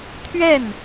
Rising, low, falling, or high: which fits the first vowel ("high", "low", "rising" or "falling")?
falling